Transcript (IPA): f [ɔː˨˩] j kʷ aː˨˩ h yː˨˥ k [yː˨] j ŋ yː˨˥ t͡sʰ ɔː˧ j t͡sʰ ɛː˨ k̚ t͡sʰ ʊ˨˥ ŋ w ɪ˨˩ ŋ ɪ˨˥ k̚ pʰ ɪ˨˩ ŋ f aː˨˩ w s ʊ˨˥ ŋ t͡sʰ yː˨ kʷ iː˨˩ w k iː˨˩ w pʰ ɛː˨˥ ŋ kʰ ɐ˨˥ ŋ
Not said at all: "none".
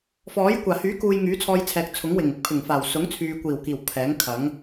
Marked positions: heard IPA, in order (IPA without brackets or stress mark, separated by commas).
ɔː˨˥, uː˨